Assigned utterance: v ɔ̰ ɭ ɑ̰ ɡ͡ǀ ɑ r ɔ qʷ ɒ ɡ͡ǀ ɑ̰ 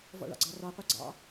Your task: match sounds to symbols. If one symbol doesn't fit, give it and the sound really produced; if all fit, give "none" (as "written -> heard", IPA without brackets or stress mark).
ɒ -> ɑ